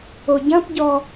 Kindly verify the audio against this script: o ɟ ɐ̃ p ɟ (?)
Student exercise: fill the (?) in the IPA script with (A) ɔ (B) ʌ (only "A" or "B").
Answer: A